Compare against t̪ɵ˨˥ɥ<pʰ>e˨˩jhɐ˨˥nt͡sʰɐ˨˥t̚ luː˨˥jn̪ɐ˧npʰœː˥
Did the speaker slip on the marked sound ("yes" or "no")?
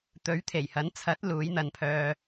yes